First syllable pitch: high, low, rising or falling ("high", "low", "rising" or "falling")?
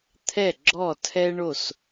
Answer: falling